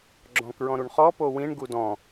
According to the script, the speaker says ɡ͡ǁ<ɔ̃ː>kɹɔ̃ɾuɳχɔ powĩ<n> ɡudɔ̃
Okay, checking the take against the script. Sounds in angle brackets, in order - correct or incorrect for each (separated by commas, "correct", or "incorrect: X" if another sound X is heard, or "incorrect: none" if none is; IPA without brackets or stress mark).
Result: incorrect: ɔ̃, incorrect: ɳ